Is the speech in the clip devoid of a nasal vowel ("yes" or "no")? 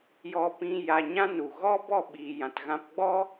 no